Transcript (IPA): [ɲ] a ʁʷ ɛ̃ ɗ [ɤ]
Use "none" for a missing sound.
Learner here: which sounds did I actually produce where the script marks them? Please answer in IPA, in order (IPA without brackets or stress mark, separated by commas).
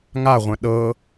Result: ŋ, ɤ